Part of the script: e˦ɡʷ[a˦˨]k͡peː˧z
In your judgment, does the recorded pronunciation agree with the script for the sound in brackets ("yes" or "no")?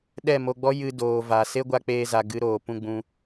no